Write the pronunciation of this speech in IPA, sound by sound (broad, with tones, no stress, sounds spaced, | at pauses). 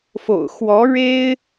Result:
f o̰˨˩ ʊ̯ x w ɔ˧˥ ɻ e˥ ɪ̯